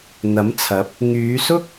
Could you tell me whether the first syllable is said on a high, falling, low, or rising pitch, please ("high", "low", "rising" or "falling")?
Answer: rising